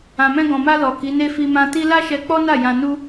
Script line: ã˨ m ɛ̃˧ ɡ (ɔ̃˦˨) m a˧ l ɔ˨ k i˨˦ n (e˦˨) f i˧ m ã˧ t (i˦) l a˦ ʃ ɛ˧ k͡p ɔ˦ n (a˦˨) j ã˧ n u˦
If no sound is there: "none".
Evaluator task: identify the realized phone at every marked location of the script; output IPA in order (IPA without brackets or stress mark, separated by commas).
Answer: ɔ̃˨, e˦, i˦, a˦˨